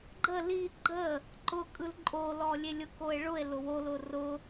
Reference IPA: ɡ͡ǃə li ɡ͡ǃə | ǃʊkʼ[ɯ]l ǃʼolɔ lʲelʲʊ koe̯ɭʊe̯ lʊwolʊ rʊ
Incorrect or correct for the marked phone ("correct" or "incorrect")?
correct